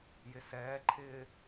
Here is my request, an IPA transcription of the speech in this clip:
j ɪ s ɛː ǃʰ ɪː

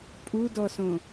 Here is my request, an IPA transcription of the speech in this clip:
pʼ u d ɔ s õ

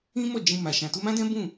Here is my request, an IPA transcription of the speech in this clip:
ĩ˦ m ɔ˦˨ d͡ʒ ĩ˧ m a˨ ʃ ã˨ t u˧ m ã˦ d ɛ̃˦ b ũ˦˨

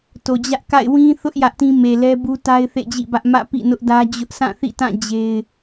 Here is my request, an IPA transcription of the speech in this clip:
t o˨ d͡ʑ ä˦ ʔ k a̰˦˨ ɪ̯ w ĩ˦ θ ʊ˦ ʔ j ä˦ ʔ t ĩ˦ m e˨ l ɛ˦ b u˦ t a˦ ɪ̯ θ ḛ˦˨ d͡ʑ ḭ˦˨ b ä˦ ʔ m ä̰˦˨ p ḭ˦˨ n ʊ˦ ʔ d ä˦ d͡ʑ ʊ˦ ʔ sʰ ã˦˨ θ ḭ˦˨ t ã˦˨ d͡ʑ e˦ ɪ̯

